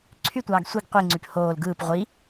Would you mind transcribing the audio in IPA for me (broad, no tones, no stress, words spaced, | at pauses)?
ǀʰytʷɑːɡ sʷiɡ qʷiŋ͡ǀyp hoːl ɡɯːp ʁʷi